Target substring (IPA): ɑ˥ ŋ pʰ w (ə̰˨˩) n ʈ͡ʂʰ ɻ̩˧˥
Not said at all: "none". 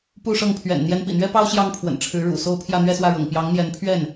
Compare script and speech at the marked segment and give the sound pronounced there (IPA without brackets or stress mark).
ə̰˨˩